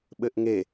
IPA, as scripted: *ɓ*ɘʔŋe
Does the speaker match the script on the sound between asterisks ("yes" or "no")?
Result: yes